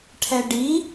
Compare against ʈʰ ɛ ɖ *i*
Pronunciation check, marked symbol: correct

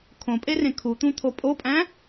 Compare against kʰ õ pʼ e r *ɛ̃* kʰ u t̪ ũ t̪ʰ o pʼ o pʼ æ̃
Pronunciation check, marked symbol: incorrect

